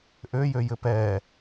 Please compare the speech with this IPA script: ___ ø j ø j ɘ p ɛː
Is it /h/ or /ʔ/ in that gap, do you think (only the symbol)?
ʔ